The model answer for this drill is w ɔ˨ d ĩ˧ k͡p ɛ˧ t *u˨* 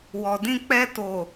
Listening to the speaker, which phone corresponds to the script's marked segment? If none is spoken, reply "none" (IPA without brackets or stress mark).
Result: o˨